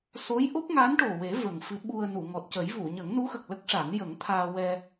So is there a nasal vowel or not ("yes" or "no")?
no